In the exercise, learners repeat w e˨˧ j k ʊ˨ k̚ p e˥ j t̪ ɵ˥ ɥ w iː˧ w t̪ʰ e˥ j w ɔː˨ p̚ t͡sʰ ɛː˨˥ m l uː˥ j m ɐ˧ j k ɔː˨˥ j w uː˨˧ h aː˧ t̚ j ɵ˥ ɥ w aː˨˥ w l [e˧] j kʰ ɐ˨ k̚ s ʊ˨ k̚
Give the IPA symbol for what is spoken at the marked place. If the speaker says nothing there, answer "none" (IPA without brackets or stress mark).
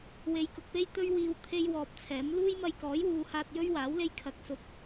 e˧